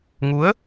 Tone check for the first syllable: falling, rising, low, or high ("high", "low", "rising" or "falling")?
rising